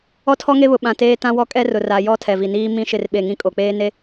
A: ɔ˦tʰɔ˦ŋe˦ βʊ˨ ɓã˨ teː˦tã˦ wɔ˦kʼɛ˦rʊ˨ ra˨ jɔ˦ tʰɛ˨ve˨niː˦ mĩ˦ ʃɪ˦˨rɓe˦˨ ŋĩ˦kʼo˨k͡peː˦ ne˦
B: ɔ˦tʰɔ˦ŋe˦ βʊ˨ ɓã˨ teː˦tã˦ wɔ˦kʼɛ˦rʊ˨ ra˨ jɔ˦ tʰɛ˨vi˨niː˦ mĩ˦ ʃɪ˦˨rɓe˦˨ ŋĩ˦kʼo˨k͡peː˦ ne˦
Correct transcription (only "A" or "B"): B